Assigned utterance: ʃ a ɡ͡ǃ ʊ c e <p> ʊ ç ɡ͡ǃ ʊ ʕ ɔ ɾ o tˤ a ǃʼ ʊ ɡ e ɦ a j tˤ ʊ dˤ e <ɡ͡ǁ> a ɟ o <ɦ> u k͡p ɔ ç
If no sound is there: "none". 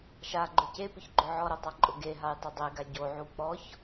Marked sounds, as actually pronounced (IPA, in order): p, ɡ, ʕ

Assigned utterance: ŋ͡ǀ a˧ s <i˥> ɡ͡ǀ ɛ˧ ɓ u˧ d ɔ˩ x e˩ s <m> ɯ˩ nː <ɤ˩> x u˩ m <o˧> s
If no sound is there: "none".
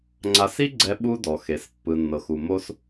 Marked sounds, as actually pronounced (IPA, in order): i˥, pː, ɤ˩, o˧

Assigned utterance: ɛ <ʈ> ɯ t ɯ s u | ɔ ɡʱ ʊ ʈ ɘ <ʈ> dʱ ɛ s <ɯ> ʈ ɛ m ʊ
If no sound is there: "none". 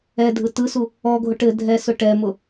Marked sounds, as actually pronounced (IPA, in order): dʱ, none, ʊ

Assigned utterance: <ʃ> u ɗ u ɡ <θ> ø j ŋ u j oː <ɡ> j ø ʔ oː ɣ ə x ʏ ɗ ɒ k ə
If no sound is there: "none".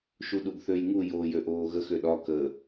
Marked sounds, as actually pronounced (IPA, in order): ʃ, θ, none

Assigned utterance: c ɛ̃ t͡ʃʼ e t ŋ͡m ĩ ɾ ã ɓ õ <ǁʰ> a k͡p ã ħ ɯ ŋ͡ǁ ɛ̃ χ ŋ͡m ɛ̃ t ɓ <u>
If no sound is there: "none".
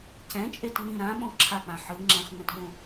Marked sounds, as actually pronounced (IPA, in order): ǁʰ, ũ

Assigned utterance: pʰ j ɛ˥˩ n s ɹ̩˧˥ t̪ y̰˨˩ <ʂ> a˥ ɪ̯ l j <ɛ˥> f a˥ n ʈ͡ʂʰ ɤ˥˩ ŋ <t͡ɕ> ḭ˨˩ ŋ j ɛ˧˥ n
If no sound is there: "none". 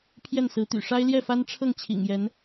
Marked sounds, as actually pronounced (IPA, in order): ʂ, ɛ˥˩, t͡ɕʰ

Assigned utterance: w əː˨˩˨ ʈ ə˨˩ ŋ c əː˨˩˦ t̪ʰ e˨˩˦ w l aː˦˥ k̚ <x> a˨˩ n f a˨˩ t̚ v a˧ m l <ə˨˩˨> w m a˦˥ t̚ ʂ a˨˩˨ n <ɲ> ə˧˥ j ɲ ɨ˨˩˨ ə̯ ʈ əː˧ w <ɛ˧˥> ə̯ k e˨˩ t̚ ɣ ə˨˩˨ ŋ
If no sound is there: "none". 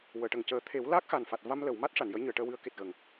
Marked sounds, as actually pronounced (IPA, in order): x, ə˨˩˨, j, ɨ˧˥

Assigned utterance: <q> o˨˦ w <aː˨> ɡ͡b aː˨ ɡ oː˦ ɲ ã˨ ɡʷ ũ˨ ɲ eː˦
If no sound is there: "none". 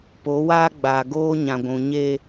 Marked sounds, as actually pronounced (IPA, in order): p, aː˦

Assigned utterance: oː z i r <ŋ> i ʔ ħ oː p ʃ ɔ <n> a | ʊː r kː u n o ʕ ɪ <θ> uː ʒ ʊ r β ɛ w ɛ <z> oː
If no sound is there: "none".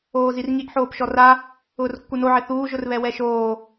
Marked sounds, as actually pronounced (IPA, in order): ŋ, r, θ, ʃ

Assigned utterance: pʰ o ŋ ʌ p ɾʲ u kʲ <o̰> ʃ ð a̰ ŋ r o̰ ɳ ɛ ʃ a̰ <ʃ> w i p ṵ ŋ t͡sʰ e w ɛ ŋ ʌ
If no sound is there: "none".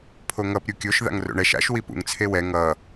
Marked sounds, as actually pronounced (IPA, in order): o, ʃ

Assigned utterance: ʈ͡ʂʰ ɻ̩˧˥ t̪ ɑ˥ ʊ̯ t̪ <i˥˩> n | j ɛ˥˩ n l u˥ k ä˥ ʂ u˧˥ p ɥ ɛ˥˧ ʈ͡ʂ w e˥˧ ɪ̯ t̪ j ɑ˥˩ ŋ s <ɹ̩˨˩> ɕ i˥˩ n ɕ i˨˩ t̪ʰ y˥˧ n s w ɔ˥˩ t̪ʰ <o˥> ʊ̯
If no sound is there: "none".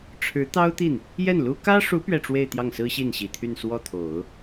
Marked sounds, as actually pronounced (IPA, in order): i˥˩, ɹ̩˥, o˨˩˦

